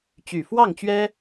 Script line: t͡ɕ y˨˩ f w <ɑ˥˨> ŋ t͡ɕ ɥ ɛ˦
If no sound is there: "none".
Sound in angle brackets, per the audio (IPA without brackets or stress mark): ɑ˥˨